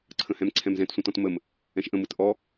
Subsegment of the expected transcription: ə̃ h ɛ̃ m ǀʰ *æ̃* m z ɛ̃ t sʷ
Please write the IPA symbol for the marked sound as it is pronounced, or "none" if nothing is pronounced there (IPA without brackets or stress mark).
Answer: ɛ̃